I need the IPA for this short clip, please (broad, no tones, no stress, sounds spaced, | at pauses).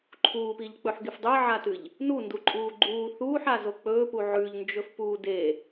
ǃʰ uː p i ʎ k͡p ɵ ħ ɡ e f dˤ ɨ ʕ a t ɨ ʎ | n u n d u ǃʼ uː ɡ͡ǃ uː θ uː ħ a z o k͡p ɵː p u ʕ ʉ ʎ n d͡ʒ ɵ f p uː d e